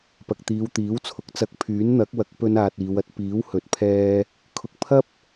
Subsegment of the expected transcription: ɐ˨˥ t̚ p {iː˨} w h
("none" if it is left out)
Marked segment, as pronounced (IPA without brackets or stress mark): iː˨˥